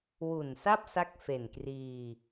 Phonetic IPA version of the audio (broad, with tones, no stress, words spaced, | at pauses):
wu˨˩nsa˥˩p̚ sa˦˥k̚fe˨˩n kriː˧